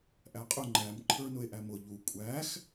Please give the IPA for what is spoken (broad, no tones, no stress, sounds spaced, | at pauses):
ʔ æ qʼ ʊ ŋ͡ǃ æ m ǃʰ ə˞ n ʊ e̯ ʔ æ m ʊ ʎ u kʷʼ æ x